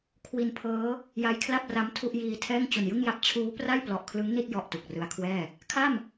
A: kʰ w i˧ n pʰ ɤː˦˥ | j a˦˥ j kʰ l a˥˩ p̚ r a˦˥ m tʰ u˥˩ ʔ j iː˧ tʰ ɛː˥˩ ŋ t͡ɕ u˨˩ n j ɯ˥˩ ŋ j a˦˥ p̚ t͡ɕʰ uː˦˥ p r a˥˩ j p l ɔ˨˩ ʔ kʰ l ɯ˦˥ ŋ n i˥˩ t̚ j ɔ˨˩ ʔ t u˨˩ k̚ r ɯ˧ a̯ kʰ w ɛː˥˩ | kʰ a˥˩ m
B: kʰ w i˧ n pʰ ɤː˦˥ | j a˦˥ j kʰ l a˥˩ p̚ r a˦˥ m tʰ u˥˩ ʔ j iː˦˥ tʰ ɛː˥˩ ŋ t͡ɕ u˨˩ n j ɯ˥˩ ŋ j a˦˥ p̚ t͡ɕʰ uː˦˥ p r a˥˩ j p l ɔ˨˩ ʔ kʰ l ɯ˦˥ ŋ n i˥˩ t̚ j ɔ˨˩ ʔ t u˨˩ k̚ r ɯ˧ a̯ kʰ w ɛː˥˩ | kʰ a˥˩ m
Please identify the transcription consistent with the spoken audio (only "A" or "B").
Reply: A